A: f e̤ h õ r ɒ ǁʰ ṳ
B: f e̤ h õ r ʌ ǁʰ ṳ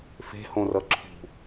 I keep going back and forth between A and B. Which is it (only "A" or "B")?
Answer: B